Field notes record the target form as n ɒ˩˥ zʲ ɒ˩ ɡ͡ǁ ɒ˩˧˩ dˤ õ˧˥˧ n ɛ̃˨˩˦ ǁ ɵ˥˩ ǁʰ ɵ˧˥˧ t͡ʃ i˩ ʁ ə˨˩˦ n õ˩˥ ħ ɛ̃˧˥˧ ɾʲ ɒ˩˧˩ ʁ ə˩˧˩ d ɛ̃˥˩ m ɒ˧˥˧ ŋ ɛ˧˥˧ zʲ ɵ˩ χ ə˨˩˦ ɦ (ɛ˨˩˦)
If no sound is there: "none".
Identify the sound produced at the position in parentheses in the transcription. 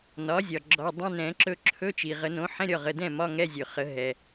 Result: ɛ˩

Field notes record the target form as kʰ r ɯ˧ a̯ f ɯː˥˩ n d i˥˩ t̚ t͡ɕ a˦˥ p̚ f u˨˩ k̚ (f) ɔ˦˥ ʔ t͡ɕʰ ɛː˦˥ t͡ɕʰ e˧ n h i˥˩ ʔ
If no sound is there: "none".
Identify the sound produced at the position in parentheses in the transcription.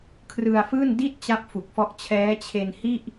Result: f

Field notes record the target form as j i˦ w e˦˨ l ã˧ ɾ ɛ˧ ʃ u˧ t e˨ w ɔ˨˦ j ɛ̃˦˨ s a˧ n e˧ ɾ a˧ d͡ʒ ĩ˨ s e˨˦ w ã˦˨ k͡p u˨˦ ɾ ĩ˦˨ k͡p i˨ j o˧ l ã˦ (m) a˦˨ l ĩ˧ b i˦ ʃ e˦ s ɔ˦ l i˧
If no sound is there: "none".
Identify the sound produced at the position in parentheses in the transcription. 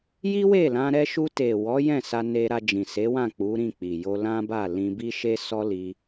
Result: b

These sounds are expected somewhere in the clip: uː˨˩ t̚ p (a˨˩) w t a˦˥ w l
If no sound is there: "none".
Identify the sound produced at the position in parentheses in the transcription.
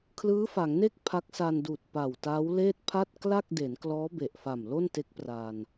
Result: a˨˩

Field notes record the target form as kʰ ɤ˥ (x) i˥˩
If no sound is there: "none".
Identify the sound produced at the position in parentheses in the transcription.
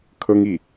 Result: ŋ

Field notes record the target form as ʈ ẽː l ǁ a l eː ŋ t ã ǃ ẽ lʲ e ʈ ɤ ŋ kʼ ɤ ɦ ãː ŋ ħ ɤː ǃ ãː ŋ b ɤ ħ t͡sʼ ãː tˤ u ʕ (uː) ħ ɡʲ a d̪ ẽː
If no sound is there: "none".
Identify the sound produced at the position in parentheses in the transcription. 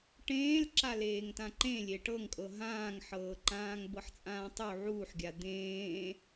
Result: uː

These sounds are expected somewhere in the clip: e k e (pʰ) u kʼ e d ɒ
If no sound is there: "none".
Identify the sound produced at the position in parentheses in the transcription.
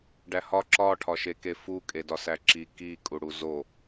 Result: f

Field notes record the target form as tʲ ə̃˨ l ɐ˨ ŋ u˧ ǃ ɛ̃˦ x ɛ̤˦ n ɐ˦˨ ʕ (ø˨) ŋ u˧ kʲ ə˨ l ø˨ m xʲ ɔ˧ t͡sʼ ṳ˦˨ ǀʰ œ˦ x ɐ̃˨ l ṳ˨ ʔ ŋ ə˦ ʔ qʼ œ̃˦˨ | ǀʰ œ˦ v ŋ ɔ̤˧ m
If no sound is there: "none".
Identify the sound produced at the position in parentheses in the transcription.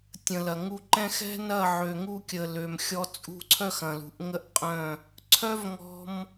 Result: ø˨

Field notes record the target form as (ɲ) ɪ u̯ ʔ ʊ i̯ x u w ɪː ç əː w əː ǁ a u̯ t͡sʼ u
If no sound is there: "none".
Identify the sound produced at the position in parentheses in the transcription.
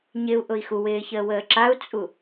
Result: ɲ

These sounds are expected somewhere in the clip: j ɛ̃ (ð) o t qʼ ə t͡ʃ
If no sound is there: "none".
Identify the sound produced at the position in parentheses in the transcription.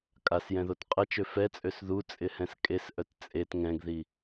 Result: ð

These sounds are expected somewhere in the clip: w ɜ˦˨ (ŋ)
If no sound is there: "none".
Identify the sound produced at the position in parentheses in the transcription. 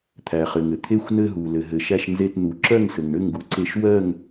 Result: ŋ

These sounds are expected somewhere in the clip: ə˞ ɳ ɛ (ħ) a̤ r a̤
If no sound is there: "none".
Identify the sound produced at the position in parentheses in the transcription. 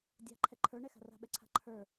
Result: x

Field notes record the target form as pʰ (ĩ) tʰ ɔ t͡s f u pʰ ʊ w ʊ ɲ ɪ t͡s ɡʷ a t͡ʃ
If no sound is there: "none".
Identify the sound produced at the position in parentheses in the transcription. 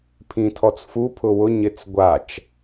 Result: ĩ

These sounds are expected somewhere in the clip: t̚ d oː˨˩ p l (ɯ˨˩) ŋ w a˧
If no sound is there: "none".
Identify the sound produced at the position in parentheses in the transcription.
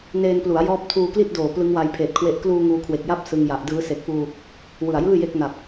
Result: ɯ˦˥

